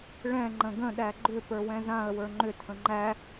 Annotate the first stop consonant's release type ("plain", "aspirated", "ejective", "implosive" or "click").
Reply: click